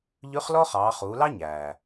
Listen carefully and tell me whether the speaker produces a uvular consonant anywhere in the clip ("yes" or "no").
yes